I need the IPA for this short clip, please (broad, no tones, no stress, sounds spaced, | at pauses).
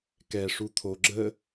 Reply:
k ɛ ʂ u t̪ʰ o ɡ͡ǁ ə